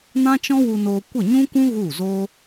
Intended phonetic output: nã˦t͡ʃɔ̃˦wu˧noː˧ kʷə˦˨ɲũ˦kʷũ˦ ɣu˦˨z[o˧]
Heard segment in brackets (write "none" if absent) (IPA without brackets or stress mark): o˦